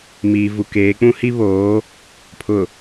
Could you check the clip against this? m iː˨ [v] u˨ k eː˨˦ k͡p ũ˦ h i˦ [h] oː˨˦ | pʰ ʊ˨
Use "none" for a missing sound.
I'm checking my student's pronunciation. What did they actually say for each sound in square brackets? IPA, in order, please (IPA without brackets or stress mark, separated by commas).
v, β